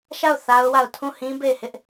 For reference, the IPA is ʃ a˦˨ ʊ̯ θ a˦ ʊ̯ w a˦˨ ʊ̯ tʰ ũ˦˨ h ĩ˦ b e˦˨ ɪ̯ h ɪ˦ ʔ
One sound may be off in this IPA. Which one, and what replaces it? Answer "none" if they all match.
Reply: none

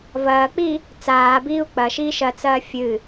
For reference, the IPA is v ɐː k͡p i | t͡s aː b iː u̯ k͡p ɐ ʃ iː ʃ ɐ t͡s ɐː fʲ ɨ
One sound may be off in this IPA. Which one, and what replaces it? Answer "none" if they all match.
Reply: none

